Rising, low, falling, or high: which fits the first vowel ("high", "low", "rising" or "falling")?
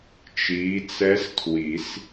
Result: rising